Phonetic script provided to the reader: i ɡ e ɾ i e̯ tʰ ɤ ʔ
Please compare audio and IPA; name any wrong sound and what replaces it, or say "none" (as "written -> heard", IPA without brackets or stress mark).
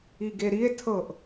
none